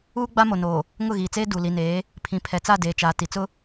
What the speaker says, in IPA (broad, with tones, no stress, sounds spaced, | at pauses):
uː˦ ɡ͡b a˦ m o˨ n oː˨ | ŋ ʊ˦˨ ɣ iː˨ t͡s eː˦ d u˨ l i˨ n eː˨˦ | pʰ ĩ˨ pʰ ɛ˨ t͡s a˦˨ d eː˨ t͡ʃ aː˨ t i˨ t͡s ʊ˦